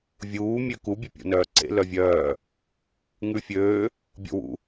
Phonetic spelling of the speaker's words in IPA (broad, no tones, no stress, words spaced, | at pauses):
vʲuː mʲøku bʲœpʲo̰nœːǀḛ lœvʲœː | ŋʉfʲøː | bʲo̰wṵ